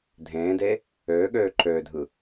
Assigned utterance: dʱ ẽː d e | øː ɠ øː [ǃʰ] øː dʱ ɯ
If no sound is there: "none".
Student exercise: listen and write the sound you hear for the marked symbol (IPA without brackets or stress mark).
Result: ǃʰ